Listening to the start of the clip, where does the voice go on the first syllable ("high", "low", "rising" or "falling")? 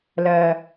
low